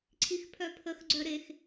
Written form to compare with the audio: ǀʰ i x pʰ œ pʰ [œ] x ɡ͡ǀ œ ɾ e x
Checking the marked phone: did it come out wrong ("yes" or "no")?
yes